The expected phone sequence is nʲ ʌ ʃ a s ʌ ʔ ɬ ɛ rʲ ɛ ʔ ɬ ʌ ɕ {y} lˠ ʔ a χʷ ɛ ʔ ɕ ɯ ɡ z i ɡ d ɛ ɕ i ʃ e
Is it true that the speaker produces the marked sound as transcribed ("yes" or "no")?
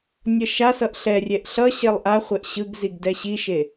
no